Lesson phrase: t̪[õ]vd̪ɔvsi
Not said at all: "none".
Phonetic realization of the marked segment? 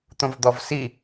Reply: õ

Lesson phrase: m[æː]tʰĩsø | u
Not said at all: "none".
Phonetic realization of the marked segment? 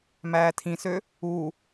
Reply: æː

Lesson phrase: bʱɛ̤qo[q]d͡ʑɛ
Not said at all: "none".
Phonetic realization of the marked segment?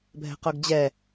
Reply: ɡ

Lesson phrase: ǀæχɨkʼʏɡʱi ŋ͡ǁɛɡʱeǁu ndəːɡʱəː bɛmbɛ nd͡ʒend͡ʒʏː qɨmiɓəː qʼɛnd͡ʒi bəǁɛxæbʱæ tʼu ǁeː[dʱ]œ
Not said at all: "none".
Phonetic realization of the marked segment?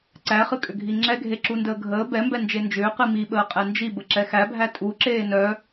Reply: n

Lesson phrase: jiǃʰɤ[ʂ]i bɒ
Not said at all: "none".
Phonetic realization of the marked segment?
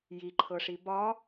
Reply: ʂ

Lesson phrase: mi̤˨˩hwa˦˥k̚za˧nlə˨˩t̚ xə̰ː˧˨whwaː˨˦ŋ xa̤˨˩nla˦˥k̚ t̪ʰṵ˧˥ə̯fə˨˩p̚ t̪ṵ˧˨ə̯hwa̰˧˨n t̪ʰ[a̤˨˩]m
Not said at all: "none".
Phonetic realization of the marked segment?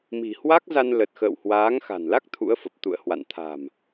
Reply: a̤˨˩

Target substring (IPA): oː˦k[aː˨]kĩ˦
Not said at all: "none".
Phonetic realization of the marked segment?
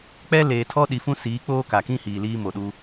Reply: a˨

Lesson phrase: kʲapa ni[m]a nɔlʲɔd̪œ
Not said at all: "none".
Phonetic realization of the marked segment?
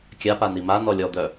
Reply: m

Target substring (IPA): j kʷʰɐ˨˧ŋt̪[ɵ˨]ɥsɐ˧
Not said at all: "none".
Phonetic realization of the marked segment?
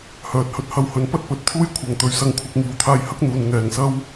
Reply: ɵ˨˧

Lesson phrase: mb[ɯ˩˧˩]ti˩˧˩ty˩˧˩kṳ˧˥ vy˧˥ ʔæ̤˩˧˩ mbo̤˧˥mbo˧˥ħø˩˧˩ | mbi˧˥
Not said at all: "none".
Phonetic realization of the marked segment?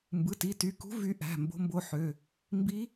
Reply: ɯ˩˧˩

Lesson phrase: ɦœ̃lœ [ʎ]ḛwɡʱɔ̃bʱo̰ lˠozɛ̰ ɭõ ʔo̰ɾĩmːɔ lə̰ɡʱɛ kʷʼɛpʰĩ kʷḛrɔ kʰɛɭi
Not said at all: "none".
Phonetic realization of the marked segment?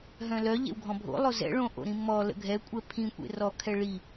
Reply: ʎ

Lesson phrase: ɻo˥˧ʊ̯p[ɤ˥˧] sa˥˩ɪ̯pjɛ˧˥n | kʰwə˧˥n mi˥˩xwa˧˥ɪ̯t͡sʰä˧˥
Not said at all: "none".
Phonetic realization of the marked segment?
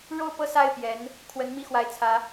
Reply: ɤ˥˧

